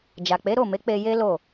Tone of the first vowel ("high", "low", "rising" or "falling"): low